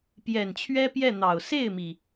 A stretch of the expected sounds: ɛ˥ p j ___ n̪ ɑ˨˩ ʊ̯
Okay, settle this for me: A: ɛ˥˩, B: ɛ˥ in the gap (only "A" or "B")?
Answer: A